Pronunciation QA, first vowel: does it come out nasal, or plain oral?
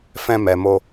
nasal